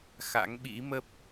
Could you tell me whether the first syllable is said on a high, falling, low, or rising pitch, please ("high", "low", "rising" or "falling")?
rising